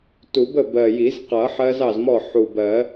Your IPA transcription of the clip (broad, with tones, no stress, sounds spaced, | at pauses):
t u˨˩˦ b ə˥˩ b ɜ˨˩ j i˨˩˦ z q ʌ˨˩˦ ħ ɜ˦˥ z ɑ˥˩ z m ɔ˥˩ ħ u˨˩ b ɜ˨˩˦